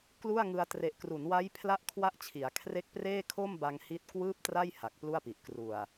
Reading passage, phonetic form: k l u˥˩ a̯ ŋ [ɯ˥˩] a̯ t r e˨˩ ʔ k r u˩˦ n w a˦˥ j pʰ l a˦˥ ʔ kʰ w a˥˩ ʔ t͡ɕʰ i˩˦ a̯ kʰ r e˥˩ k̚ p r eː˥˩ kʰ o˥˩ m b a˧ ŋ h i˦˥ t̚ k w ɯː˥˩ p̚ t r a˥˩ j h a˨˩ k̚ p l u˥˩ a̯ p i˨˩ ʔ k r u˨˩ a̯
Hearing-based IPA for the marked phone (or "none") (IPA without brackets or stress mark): ɯ˧